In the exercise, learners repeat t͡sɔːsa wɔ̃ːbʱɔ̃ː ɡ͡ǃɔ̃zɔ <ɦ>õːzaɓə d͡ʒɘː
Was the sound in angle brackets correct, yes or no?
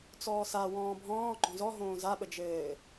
yes